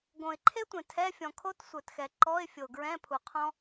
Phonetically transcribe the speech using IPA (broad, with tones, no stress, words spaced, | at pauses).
ɡõ˨ɪ̯ǃʰe˥tʷẽ˨ tʰɛ˧˥˧fʲɔ̃˨kʰo˥t sʷœ˨txɛ˨ ǃɔ˧˥˧ɪ̯fʲo˨ɡɹɛ̃˧˥˧ pʰu˨qʰɔ̃˥